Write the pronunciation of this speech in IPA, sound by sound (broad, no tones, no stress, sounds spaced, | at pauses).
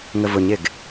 ŋ ə v ʊ ɲ ɪ ɡ